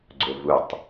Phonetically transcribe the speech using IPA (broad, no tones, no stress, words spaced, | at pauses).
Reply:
ɡ͡ǀʊvutˤ